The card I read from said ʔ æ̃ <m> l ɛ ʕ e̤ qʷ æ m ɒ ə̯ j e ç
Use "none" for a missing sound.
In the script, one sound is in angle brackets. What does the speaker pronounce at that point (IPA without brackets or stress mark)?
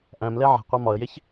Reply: m